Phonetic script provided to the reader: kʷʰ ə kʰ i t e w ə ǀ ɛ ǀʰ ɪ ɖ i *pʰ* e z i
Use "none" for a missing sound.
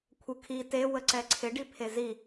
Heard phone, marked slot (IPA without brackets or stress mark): pʰ